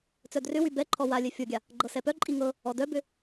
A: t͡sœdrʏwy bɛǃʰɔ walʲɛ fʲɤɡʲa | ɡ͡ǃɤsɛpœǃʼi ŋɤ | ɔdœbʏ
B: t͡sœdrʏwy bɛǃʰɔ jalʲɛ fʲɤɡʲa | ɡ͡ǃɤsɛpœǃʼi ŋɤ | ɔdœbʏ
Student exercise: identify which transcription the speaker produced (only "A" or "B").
A